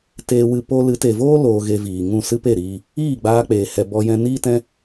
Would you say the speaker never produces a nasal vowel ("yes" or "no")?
no